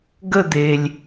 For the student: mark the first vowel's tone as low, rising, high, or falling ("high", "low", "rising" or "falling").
falling